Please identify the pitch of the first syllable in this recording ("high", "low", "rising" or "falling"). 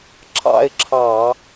falling